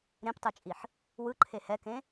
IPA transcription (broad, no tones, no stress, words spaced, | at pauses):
ɾẽptˤɯt͡ʃʼiħ | wɯǃʰe hɛkẽ